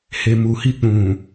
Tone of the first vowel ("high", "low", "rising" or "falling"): low